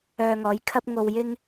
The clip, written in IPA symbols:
œː˧ ŋ ɔː˨˥ j kʰ ɐ˥ p̚ ŋ o˧ w j ɪ˥ ŋ

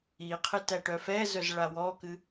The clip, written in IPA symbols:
i qʰ ɨ t æ ʈ œ f ɛ z œ z ɭ a w ɔ k ɨ

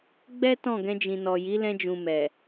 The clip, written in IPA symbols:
ɡ͡b ɛ˦ t ɔ̃˦˨ ɡ ɛ̃˧ d͡ʒ ĩ˨ n ɔ˨ j i˨˦ l ɛ̃˧ d͡ʒ ũ˨ m ɛ˨

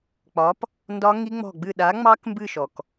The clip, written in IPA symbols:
k͡p ɒ˨˥ p | n d ɒ˦˥ ŋ i˦˥ ŋ͡m ɔ̤˦˨ ɡ͡b ɨ˦˨ ɗ a˨˥ ŋ͡m ɑ˦˥ k m b ɨ˦˨ ʃ ɔ˩ k

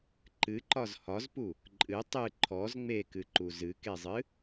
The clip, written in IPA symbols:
ǃ ɨ ǃ ɒ z h ɒ z p u | ǃʼ ɨ tˤ ɨ ǃʰ ɔ z ŋ͡m e k ɨ ǃ u z ɨ k e zˤ ɨ

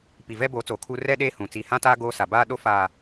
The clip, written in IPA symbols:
p i˨ v ɛ˦ b oː˨˦ t͡s oː˨ kʰ uː˦ r ɛ˦ ɗ eː˦ h ũ˨ t͡s i˨ h ã˦ t aː˦ ɡ oː˦ s a˨ b aː˦ ɗ o˦ f aː˨

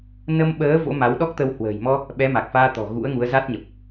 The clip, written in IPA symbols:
n ə˧ m ɓ əː˨˦ v o̰˧˥ m a˨˦ w ɗ ɔ˦˥ k̚ t̪ ə˧ w h w ə̤ː˨˩ j m ɔ˧ | ɓ ɛ˨˦ m a˨˩ k̚ f aː˧ t̪ ɔ̤˨˩ ɣ ṵ˧˥ ə̯ ŋ u˨˦ ə̯ z a˦˥ t̚ ɲ ə˨˩ p̚

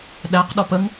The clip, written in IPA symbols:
ɗ æ q ɗ ɔ p ə ŋ

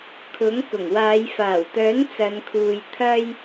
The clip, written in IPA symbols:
kʰ ʊ˨˥ ŋ k ʊ˨˩ ŋ w aː˨˧ j f aː˨˩ w t̪ œː˨˥ n t͡s ɐ˨˧ n kʰ uː˨ j t̪ʰ ɐ˧ j

